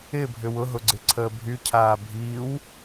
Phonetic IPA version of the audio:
ɪ bʱ ʏ w ʊ ɦ ʊ ɡ͡ǀ ɪ ǀʰ əː bʱ y cʰ aː bʱ i w

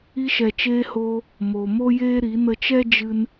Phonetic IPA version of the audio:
i˧ ʃ ɛ˨ t͡ʃ eː˧ h oː˧ | m o˨ m o˦ j eː˦ ɾ i˨˦ n ə˧ t͡ʃ ɛ˦ d͡ʒ ɨ˦ n

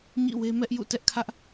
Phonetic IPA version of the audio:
ɲ ḭ˦˨ w e˦ m ɛ˦ ʔ j ṵ˦˨ t ɛ˦ ʔ kʰ ä˦ ʔ

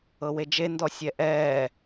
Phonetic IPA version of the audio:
ɤ w e d͡ʒ e n d ɔ sʲ ɛ ʔ ɛː

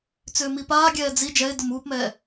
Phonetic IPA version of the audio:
t͡s ʏː m i p aː ɡʲ ɛː d͡z i d͡ʒ ɛ ɪ̯ d ʊ m uː p m ɛː

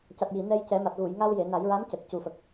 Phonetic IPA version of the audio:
c a˨˩ t̚ j i˨˩˨ n ɛ˧ j c ɛ˨˩˦ m a˨˩ t̚ ɣ u˨˩˨ j ŋ a˧ w j e˨˩˨ n a˨˩˦ j ɹ a˧˥ m c ə˨˩ k̚ c u˨˩ f ə˨˩ k̚

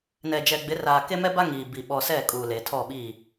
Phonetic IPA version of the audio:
n ɛ˨ d͡ʒ ɛ˨ ɡ͡b ɪ˨˦ r aː˨ k e˦ m ɛ˦ b a˦ ŋ iː˨ b i˨ ɓ ɔ˨ s ɛ˦˨ kʼ uː˨ l e˨ tʰ ɔ˦˨ ɓ i˦˨

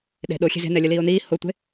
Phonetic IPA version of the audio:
ɗ e̤ ɗ o xʲ e̤ z e̤ n ɛ lʲ ə l iː o̯ n iː h o tʷ e̤

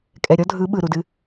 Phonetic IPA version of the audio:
kʼ ɛ˨ ɾʲ ɔ˦ dʱ ɯ˨˦ ɓ ɯ˨ ɾ u˨ d ɨ˧

